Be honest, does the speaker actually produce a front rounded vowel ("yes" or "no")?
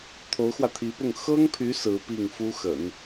yes